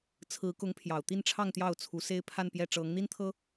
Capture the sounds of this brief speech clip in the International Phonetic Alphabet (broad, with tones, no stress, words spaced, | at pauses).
t͡sʰɹ̩˧˥kʊ˧˥ŋ pʰjɑ˨˩ʊ̯t̪i˥˧nʈ͡ʂʰɑ˥˧ŋ t̪jɑ˥˩ʊ̯t͡sʰu˧˥se˥ɪ̯ pʰa˥˧npjɛ˥˩ ʈ͡ʂɤ˧˥ŋn̪i˥nt̪ʰɤ˥